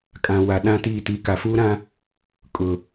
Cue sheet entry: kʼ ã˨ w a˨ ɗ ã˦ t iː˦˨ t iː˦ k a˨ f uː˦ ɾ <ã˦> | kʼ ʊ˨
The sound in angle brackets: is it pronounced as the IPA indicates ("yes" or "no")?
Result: yes